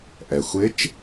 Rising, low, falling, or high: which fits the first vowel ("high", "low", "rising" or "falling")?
low